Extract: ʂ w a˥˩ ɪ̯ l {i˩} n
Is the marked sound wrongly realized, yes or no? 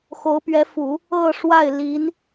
yes